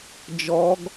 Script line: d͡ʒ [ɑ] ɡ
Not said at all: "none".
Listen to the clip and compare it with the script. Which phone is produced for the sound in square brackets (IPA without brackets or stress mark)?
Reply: ɔ